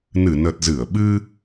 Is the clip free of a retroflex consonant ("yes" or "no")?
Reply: yes